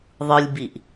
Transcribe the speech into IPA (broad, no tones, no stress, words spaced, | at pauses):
ðˤɯlʲbiʔ